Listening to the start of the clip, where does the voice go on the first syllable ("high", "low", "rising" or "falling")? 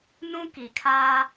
high